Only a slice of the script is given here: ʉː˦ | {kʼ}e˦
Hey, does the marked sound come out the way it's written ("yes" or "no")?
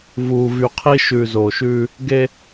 no